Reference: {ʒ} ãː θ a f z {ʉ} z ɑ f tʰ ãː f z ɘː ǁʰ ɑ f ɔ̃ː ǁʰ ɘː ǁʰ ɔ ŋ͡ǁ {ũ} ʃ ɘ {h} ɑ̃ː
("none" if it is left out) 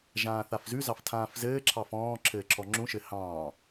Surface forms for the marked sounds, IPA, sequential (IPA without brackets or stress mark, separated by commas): ʒ, ʉ, ũ, h